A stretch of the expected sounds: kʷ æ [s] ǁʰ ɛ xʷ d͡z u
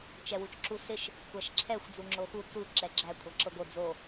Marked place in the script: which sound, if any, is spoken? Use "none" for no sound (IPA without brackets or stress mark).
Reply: ʃ